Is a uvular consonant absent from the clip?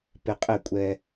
no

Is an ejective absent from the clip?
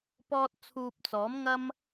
yes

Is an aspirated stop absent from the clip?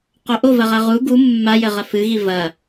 yes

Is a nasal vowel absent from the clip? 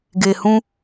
no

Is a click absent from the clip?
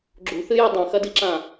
no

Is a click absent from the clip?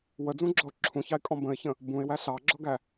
no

